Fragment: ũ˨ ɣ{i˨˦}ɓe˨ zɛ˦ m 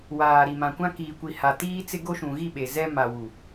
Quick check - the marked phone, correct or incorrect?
incorrect